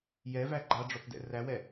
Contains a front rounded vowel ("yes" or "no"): no